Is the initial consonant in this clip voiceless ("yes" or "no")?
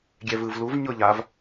no